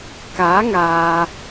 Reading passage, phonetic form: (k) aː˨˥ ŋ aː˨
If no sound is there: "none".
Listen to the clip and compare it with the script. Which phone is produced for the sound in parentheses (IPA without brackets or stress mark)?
k